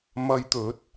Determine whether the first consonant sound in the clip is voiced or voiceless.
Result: voiced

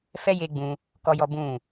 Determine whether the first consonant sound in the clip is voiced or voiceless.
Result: voiceless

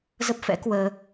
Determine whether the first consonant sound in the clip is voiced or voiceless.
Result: voiced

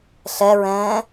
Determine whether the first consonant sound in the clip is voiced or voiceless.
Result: voiceless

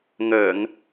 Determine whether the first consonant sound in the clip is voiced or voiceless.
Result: voiced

